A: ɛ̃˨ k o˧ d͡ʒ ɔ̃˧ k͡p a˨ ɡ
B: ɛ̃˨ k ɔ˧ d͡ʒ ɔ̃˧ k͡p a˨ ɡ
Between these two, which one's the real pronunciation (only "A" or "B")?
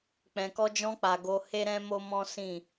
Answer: B